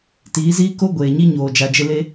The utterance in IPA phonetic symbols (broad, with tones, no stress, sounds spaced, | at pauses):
t iː˨˦ z iː˦ k o˦ ɡʷ eː˨ ɲ i˦ ɲ oː˨ d͡ʒ a˨ d͡ʒ ɪ˦ l e˦